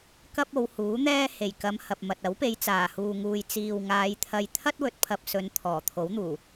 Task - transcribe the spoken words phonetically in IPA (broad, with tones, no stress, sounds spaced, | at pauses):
k ɐ˥ p̚ o˨˧ w h uː˨˥ n̪ ɛː˥ h e˨˩ j k ɐ˨˧ m h ɐ˨ p̚ m ɐ˨ t̚ ɐ˨˥ w p e˨˧ j t͡s aː˨˩ h uː˨ ŋ uː˨ j t͡s iː˨ w ŋ aː˨˧ j t̪ʰ ɐ˧ j t̪ʰ ɐ˥ t̚ w ɵ˨ t̚ pʰ ɐ˨ p̚ s ɵ˨˧ n t̪ʰ ɔː˨˩ t̪ʰ o˨˥ w n̪ uː˨˩